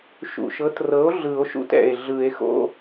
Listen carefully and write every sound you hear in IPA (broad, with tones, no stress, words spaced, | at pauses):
ʃṵ˨˩ʃɤ˩˥trɤ˩˥o̯ ɮɯ˨˩˦o̯ʃṵ˧˥˧tɛ̰˨˩e̯ ɮɯ˨˩˦e̯xo̰˧˥˧